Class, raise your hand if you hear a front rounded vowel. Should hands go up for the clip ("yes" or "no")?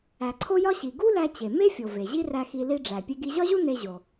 no